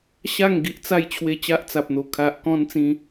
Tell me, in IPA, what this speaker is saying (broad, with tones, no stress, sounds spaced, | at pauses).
ɕ a˥˧ ŋ ɡ i˦ ʔ t͡s a˥˧ j t͡ɕʰ w e˧ t͡ɕ a˦ ʔ t͡s a˨ p̚ n̪ o˨˩ kʰ a˨ ʔ k ɔ̃˧ n t͡s ĩ˧